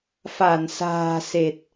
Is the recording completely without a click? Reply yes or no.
yes